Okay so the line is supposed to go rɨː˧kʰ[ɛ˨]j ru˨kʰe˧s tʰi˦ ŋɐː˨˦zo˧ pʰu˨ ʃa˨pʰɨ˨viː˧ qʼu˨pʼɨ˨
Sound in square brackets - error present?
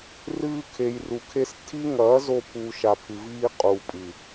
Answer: yes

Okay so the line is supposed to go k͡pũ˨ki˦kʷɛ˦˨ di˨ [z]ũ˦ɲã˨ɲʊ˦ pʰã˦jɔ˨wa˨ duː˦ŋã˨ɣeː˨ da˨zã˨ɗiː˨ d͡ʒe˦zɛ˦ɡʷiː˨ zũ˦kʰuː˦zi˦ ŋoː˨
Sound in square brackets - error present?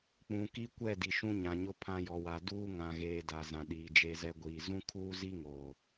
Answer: yes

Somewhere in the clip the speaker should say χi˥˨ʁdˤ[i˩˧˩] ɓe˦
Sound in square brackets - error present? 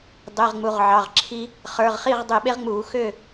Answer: yes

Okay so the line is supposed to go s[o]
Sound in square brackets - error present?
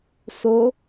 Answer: no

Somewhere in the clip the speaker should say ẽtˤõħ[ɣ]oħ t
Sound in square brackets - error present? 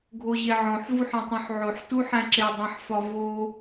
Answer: yes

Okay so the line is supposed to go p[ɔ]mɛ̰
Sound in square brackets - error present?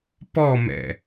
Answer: no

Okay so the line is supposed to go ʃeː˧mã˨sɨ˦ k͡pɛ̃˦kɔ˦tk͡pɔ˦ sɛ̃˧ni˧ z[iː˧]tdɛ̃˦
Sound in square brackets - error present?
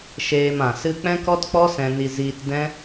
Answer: no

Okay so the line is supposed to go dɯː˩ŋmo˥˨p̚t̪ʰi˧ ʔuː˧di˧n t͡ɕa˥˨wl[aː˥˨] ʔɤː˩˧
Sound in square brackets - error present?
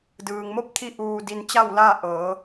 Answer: no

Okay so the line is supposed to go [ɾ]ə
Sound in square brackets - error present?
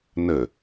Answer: yes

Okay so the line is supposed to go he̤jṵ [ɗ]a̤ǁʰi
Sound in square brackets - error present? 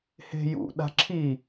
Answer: no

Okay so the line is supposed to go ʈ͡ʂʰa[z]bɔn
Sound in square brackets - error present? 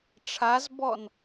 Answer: no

